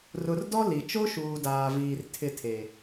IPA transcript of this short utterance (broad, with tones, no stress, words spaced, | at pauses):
rʊ˨rdɔ˦ li˨ t͡ʃo˦ʃuː˨daː˨viː˨r tʰɪ˦˨tʰe˨